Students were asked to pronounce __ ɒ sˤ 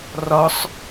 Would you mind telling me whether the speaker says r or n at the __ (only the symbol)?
r